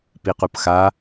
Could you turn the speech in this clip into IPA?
piqupxa

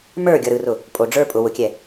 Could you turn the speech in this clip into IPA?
mə˞ ɡʲʌɾɯrʊ | pʼo ɖ͡ʐə˞ pʼʊ wʊkʲɛ

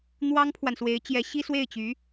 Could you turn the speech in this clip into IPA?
n̪wɑ˥ŋpʰwa˨nswe˧˥ɪ̯t͡ɕjɛ˧˥ ɕi˥swe˥˩ɪ̯t͡ɕy˧˥

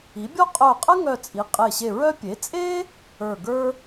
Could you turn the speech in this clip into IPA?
i˩˥bʲɔ˥ qʼœ˧˩qʼə˥ŋœ˧˩t͡sʼi˩˥ qʼe˧˩ɕe˧˩ɹœ˥ pʲe˩˥t͡sʼe˥ | ə˞˧˩ɡə˞˥

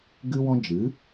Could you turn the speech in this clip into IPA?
ɡɨ˦wɔ̃˦ d͡ʒɨ˨˦

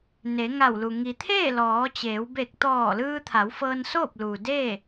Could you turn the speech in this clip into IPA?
ne˩˧ŋa˧˩wlu˩ ŋi˩t̪ʰeː˥˨ lɔː˩˧t͡ɕeː˩˧w be˧˩k̚t̪ɔː˧˩lɯː˧ t̪ʰa˩˧wfɤː˧nsoː˥˨p̚ lu˩ deː˥˨

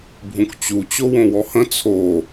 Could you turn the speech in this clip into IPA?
bʱũkt͡ɕu t͡ɕowõwɔhə̃ t͡sʰo

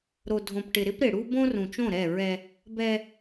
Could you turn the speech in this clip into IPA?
ɾo˨dʱõ˨pʈɪ˨ ɾɪ˦pɾɪ˨ɽu˦ bõ˦rũ˨t͡ʃõ˦˨ ɾɛ˦˨ɹɛ˦ | bɛ˦

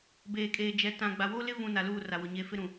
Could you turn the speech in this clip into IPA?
beː˨kʼeː˨d͡ʒɛ˨˦ tã˨ɡ͡ba˨ wo˦lɪ˦vũ˨ na˨luː˦˨ra˨wʊ˨ ɲeː˨fɪ˦ɾũ˨

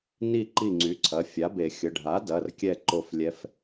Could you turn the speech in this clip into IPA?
ni˦˨ ǃi˦˨ŋ͡ǀy˩˥ ǀʰɐ˩˧˩fʲa˩˥be˨˩˦ xʲə˩˧˩ɖʱa˩˥ dɐ˩˧˩rkʲɛ˦˨ ǃo˦˨flʲɛ˧˥f

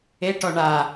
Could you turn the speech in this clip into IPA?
eʈɔ ɳa

